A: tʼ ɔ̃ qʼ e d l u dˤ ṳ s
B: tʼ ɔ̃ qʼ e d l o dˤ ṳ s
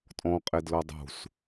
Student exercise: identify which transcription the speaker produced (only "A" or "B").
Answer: B